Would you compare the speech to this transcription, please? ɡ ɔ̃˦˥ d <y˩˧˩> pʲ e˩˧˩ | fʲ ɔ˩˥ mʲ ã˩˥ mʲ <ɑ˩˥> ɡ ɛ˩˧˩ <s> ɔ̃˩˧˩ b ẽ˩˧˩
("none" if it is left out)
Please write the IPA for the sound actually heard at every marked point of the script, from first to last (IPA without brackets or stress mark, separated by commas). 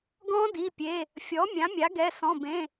i˩˧˩, a˩˥, s